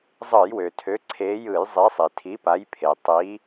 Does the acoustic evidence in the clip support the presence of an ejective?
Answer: no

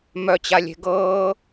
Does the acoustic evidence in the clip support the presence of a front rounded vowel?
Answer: yes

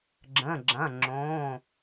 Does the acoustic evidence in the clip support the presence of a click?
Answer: yes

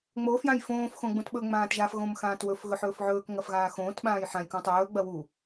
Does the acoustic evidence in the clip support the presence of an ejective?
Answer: no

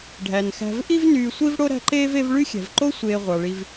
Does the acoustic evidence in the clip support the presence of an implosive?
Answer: no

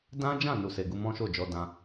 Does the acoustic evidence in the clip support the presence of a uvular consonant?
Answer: no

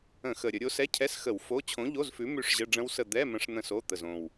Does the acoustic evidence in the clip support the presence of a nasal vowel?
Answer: yes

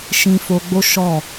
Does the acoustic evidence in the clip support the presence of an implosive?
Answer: no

